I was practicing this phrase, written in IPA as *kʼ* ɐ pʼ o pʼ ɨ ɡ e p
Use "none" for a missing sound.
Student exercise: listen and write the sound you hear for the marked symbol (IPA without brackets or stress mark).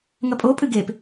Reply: ŋ